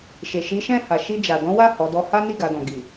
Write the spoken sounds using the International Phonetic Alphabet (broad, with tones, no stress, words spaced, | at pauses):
ʃe˨ʃi˨˦ʃɛ̃˦˨ ha˨ʃi˧d͡ʒa˨ dɔ̃˨˦wa˦˨ hɔ˨˦dɔ˦ ha˦ni˦˨ ɡa˨˦dɔ̃˧ ɡi˨